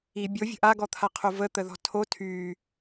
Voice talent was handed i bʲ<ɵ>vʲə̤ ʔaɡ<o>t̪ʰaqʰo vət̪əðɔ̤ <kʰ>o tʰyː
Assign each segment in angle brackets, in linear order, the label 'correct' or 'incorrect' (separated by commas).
incorrect, incorrect, incorrect